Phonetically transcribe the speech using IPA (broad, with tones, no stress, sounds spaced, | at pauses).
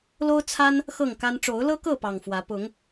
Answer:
l o˦ ʊ̯ t͡sʰ a˦ n | x ɤ˥˨ ŋ k a˦ n ʈ͡ʂ o˨˦ ʊ̯ l ɤ˦ k ɤ˥˨ p ɑ˨˩ ŋ f w ä˨˦ p ʊ˨˦ ŋ